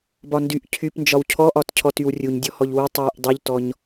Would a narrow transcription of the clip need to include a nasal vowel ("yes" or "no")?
no